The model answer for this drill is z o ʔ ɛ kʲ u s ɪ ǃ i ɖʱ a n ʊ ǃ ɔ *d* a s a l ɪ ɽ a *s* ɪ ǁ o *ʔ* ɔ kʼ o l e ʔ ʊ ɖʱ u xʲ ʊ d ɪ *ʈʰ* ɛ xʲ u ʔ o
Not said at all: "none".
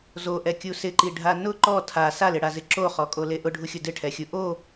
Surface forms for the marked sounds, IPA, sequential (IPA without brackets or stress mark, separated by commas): tʰ, z, χ, ʈʰ